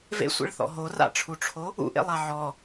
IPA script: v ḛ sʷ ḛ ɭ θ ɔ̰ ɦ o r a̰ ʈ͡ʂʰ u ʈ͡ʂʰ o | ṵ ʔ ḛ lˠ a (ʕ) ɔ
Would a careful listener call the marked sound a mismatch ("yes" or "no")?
no